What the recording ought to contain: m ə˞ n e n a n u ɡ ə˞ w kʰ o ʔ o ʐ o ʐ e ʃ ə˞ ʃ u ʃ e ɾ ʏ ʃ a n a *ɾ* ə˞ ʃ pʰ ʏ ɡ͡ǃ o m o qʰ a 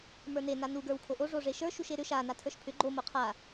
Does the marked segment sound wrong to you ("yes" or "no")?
yes